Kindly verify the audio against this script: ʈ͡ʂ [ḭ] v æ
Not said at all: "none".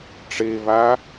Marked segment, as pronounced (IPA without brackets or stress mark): i